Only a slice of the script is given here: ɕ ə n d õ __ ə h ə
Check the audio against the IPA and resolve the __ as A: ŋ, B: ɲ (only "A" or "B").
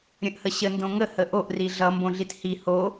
A